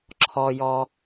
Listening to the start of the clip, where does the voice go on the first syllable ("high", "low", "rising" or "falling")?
low